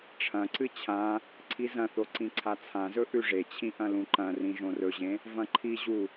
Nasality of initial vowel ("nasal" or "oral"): nasal